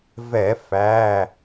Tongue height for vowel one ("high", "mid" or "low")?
mid